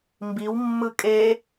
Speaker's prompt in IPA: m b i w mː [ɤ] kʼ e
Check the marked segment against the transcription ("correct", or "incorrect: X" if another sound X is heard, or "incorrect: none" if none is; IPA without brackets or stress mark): incorrect: ɯ